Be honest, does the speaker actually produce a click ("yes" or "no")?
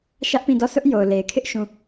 no